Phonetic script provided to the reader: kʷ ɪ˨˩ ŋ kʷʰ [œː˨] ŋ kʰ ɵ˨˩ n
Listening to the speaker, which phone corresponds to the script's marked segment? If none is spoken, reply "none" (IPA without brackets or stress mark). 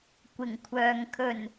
œː˨